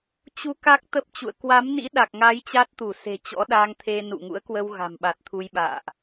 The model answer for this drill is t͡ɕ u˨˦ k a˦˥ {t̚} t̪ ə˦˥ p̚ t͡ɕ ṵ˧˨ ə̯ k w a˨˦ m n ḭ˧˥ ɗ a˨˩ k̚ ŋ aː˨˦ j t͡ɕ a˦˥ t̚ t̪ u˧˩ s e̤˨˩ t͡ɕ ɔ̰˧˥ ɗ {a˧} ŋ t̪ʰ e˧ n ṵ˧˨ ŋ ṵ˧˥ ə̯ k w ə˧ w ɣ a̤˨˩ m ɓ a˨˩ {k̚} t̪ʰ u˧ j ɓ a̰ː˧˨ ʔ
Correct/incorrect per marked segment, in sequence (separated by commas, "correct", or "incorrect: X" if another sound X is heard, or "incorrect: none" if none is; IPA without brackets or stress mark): incorrect: k̚, correct, incorrect: t̚